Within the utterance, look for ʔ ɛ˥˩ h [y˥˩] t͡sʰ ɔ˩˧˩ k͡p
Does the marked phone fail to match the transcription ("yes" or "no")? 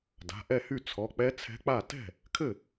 no